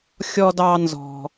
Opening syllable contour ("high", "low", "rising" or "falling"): high